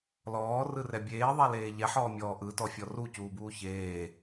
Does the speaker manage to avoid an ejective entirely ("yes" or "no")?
yes